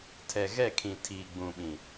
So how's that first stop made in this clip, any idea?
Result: aspirated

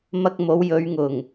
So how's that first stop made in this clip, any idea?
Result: plain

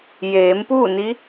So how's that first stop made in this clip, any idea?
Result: plain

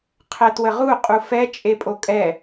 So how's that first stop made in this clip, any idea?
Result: aspirated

